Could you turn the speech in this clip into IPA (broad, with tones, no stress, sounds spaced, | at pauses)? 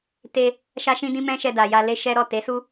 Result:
t e˧ | ʃ a˦ ʃ ĩ˦ d ĩ˦ m ɛ̃˦ ʃ ɛ˧ d a˨ j a˧ l e˦ ʃ ɛ˦ ɾ ɔ˦˨ t e˨˦ s u˦